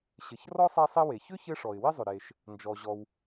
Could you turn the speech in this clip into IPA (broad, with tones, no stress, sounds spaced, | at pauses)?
ɕ ɘ˩ ç r ɔ˥ sˤ e˥ sˤ i˥ w e˩ ç ʏ˥ ç ɘ˥ ʂ ɔ˩ ɪ̯ w i˥ zˤ ʏ˩ ɾ e˩ ʃ | n d͡ʒ ɔ˩ ʑ ɔ˩ w